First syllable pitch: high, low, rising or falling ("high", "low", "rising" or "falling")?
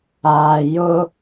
low